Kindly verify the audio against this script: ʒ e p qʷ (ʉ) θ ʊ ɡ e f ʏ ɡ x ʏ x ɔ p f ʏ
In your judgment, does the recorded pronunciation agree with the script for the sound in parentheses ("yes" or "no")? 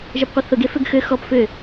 no